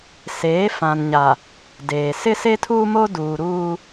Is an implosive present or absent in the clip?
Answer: absent